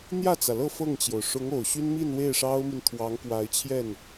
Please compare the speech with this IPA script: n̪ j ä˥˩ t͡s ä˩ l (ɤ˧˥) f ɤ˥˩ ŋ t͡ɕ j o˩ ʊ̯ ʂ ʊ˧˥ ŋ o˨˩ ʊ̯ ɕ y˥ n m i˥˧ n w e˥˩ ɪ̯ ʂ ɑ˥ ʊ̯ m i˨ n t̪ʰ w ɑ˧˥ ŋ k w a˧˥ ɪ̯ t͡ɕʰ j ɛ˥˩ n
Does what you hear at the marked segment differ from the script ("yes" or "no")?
yes